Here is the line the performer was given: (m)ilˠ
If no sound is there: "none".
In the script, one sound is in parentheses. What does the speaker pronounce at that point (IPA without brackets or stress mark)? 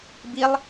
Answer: b